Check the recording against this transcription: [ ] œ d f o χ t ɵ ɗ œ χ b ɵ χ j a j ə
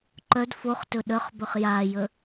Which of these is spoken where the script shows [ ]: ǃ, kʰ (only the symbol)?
ǃ